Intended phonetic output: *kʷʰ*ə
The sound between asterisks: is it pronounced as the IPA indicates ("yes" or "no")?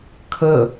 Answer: no